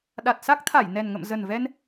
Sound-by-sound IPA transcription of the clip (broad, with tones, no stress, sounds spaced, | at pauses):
ɗ a˨˩ t̚ s a˦˥ k̚ t̪ʰ a˧˩ j n ɛ˨˩ n ŋ ə̰˧˨ m z ə˨˩ n v ɛ˧ n